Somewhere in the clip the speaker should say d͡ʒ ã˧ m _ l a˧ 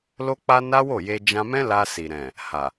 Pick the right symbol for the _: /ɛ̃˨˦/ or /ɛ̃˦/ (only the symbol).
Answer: ɛ̃˦